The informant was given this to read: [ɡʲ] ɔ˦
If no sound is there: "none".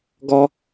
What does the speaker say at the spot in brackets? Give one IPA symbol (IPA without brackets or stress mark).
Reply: ɡ